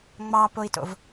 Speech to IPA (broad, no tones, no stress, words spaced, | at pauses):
ŋ͡mɑpoi̯to̰v